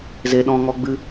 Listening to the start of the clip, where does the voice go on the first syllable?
high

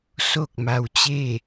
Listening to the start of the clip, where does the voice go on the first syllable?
falling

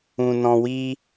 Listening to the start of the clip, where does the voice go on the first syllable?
low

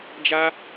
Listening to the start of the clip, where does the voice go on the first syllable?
high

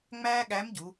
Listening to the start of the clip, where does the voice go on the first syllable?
high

